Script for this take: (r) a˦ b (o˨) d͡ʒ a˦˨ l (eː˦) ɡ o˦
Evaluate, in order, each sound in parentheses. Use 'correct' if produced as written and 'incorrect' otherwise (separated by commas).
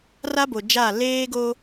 correct, correct, correct